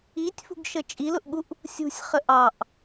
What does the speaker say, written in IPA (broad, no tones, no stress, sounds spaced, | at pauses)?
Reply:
i tʲ f ṳ ɡ ʃ ə t͡ʃʼ i l ʊ ʔ ɠ u ʔ | sʲ ṳ sʲ χ ə ʔ ɑ ʔ